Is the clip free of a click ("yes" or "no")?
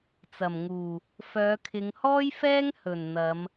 yes